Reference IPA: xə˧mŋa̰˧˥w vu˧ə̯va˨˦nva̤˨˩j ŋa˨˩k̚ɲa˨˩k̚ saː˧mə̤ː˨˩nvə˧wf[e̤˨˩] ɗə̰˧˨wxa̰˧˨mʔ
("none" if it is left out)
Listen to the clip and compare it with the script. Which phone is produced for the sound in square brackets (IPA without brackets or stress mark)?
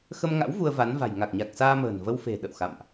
e̤˨˩